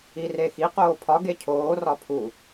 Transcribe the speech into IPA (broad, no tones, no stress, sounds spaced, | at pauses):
i r e x i q oː pʰ ɒ ɡ e cʰ oː r ɒ pʰ u